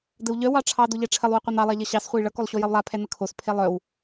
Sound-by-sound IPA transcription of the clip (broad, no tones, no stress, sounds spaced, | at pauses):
d ə w ʎ œ w ɑ ʈ͡ʂʰ ɑ d o ʎ ɛ ʈ͡ʂʰ ə lˠ w ə qʷ œ n ɑ lˠ ɑ ʎ ʌ ɕ ɑ s χʷ e j ɭ ʌ k o lˠ ɕ o j ʌ w lˠ a pʰ ɛ n ə kʰ o s pʰ e lˠ œ w